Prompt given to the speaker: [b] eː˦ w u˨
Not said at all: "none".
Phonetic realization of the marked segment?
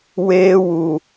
w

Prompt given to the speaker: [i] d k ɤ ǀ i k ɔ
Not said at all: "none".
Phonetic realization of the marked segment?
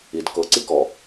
i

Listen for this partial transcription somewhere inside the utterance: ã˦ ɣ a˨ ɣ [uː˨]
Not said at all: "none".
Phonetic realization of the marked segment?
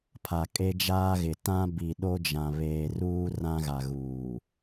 uː˨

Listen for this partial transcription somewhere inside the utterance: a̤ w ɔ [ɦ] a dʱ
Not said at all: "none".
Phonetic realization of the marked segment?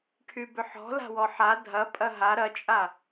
ħ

